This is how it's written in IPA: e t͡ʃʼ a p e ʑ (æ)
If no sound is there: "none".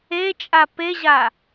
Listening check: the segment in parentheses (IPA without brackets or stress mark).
a